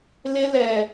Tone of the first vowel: high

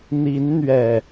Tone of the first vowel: rising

